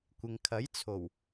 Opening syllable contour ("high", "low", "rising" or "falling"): low